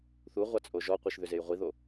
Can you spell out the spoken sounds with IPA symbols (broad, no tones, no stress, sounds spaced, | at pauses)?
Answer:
θ u ʁʷ a t͡sʼ o ʒ ɔ qʷ i ʃ ð ʏ z e j ʁʷ i ð o